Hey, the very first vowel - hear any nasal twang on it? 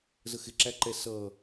no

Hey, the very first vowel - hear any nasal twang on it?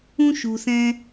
yes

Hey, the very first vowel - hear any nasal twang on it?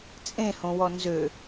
yes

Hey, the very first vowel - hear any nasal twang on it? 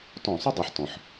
yes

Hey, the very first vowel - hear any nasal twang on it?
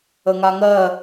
no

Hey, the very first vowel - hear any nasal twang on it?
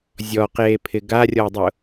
no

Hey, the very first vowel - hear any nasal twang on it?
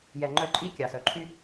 no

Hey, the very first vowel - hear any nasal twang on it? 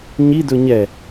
no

